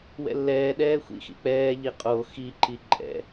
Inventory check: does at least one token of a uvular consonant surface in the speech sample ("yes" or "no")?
yes